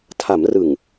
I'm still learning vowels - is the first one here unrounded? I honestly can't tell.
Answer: yes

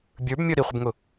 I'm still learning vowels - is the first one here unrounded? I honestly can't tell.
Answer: yes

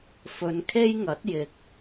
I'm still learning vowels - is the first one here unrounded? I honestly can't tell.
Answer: no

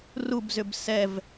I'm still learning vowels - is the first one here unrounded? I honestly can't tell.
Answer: no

